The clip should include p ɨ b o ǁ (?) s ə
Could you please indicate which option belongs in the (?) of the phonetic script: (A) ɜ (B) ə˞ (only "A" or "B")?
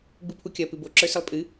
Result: B